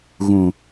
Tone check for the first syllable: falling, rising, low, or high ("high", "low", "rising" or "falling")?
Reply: low